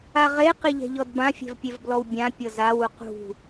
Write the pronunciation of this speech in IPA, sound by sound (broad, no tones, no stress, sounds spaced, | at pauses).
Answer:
a ʁ e q i ʎ ɛ̤ ʎ ɔ d b ã fʲ ɛ̤ v pʲ e v b l ɔ w bʲ ã pʲ ɤ z a w u q ṳ